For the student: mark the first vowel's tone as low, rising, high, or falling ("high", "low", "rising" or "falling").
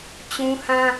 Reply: high